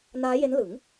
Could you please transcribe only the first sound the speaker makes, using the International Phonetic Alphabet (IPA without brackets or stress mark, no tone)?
n